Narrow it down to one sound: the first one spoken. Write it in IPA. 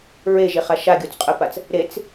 ɹ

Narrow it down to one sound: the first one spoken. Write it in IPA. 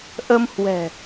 ʔ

